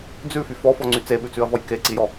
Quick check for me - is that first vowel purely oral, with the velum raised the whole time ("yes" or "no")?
yes